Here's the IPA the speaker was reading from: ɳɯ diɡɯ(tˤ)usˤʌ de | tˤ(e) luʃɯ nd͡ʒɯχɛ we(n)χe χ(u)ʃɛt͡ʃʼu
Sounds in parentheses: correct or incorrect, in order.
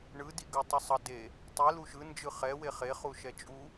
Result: correct, incorrect: i, incorrect: none, correct

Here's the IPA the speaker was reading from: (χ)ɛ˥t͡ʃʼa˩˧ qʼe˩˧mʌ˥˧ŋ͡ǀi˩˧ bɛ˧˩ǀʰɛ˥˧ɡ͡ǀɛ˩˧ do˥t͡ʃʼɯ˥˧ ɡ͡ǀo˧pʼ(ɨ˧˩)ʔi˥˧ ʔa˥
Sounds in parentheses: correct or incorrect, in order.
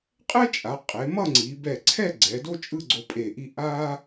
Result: incorrect: qʼ, incorrect: e˧˩

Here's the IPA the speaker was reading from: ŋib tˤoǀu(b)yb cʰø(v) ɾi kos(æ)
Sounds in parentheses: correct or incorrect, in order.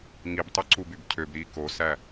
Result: correct, incorrect: b, correct

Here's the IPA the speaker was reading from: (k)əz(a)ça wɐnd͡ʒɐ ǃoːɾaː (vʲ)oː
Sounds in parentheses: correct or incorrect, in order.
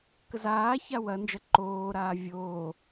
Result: correct, incorrect: aː, correct

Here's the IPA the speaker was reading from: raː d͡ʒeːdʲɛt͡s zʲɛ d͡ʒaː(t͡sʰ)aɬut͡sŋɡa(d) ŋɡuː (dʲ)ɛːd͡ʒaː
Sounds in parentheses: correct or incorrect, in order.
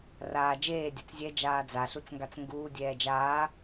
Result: incorrect: d͡z, incorrect: t͡s, correct

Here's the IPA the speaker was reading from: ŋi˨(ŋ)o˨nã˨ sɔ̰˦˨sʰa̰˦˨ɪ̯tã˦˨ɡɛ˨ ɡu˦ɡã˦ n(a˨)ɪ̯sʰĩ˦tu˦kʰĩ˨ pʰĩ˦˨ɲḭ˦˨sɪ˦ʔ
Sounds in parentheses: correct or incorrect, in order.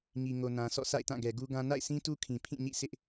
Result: correct, incorrect: a̰˦˨

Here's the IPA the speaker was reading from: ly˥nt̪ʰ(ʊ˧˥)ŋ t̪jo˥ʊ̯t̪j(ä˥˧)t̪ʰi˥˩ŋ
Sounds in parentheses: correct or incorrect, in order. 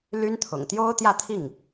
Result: incorrect: ʊ̰˨˩, correct

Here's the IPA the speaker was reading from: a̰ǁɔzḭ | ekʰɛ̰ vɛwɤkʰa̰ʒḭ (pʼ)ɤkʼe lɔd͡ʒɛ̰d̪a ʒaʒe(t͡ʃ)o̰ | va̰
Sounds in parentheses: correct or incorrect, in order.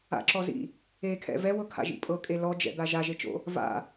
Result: correct, correct

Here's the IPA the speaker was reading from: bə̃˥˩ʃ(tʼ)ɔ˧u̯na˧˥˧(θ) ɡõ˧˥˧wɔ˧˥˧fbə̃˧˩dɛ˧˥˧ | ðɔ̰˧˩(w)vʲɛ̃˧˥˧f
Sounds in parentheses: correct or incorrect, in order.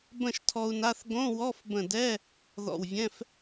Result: incorrect: tʰ, correct, correct

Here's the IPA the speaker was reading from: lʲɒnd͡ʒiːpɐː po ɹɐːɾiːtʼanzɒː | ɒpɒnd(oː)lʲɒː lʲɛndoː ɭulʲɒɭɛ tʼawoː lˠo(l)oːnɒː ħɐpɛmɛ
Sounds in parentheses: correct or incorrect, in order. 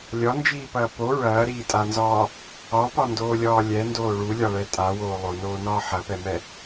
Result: correct, incorrect: n

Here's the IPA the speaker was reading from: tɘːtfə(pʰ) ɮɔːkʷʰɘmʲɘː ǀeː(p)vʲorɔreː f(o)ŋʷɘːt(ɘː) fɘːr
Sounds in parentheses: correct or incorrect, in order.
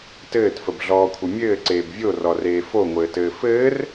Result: incorrect: b, incorrect: b, correct, correct

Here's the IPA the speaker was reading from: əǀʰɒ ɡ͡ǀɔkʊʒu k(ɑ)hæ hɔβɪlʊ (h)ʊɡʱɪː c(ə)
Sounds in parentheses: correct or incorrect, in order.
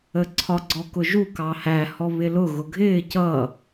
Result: correct, incorrect: ɣ, incorrect: ʌ

